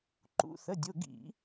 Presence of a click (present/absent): present